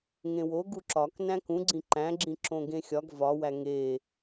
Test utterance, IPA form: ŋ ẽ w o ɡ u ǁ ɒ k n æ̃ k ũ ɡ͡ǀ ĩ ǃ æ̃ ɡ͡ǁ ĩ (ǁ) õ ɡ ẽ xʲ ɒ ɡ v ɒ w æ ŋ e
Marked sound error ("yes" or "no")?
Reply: no